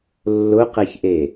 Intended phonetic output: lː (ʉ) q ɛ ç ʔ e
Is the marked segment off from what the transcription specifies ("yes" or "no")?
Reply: yes